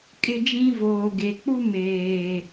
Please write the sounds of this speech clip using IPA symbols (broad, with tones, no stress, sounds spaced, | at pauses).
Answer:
kʼ ɪ˦ d͡ʒ ĩ˦ v oː˨ ɡ e˨ k͡p u˦ m eː˨